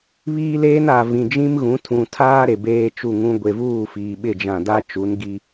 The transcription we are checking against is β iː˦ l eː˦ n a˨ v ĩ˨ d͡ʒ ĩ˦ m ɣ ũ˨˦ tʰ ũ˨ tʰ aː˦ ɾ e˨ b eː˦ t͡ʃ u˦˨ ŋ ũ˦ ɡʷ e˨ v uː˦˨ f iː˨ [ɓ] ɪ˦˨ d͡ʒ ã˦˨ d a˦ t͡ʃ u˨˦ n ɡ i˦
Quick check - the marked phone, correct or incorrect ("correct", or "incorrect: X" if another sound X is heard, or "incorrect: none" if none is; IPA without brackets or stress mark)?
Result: correct